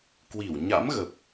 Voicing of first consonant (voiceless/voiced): voiceless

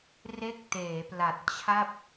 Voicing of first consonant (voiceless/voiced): voiced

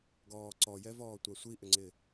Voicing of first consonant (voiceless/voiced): voiced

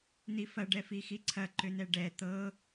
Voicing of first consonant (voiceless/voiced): voiced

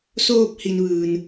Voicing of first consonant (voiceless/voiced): voiceless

